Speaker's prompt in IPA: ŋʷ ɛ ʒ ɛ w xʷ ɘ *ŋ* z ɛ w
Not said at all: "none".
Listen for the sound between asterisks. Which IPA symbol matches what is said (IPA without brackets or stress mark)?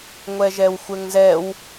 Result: ŋ